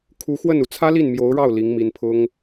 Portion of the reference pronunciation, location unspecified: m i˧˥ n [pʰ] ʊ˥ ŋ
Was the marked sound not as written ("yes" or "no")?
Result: no